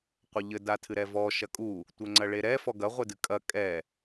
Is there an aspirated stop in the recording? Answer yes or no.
yes